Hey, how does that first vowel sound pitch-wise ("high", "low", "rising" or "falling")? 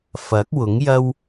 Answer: rising